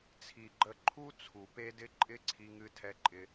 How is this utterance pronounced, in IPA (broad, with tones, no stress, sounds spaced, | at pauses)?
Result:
t͡sʰ i˨ ɡ͡ǃ ə˧ ǃʰ u˦ t͡sʰ u˨ p e˦ d ɪ˦ ǃʼ ɪ˦ ǀʰ i˧ ŋ ɨ˧ tʰ ɛ˧ ǃʼ ɪ˧